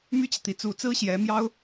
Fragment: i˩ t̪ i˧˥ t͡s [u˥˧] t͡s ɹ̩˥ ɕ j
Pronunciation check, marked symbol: incorrect: u˧˥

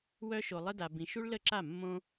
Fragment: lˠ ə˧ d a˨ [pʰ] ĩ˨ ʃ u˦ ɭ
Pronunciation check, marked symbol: incorrect: b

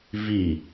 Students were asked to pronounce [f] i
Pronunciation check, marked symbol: incorrect: v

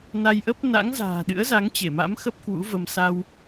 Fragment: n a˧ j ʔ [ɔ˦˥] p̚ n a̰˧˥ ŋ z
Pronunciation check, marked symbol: incorrect: ə˦˥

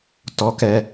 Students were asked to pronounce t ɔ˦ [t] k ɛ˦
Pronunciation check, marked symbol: incorrect: none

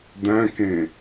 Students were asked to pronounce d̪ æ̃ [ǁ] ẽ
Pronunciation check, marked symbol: incorrect: k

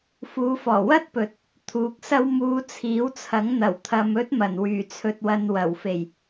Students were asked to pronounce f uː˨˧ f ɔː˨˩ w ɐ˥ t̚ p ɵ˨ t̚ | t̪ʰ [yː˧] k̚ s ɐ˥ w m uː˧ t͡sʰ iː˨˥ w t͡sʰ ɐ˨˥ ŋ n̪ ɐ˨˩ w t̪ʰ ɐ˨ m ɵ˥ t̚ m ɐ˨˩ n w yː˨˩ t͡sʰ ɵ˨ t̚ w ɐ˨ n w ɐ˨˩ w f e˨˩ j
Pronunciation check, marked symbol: incorrect: uː˧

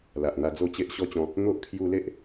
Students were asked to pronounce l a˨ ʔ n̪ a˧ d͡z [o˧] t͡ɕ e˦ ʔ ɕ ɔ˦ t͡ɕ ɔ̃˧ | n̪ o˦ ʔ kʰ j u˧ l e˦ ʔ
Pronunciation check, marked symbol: incorrect: o˥˧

